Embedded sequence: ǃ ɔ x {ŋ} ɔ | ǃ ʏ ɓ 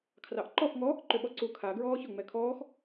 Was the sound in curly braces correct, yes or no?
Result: yes